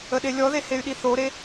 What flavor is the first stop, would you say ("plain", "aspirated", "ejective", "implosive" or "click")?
implosive